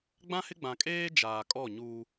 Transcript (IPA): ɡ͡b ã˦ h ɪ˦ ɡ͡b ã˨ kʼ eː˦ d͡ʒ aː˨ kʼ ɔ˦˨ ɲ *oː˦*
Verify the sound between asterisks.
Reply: incorrect: uː˦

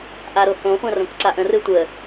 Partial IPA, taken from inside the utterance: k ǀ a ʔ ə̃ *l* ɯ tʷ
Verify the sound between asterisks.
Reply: incorrect: r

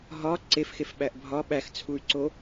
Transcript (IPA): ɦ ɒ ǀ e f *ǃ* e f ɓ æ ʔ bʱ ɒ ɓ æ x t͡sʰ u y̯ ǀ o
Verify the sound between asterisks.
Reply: incorrect: x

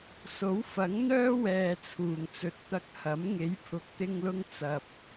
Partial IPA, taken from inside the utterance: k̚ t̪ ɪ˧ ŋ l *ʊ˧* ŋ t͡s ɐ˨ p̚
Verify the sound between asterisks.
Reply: correct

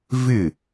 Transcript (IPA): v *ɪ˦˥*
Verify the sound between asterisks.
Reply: incorrect: ɪ˥˨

